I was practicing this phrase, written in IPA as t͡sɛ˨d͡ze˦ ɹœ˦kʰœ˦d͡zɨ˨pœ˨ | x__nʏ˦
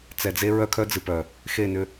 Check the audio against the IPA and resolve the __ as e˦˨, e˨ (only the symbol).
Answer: e˦˨